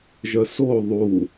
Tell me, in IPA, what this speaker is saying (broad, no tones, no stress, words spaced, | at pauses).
ʒœso ðˤu